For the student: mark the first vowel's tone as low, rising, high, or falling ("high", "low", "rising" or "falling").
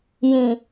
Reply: low